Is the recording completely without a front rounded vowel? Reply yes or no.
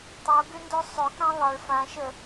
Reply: no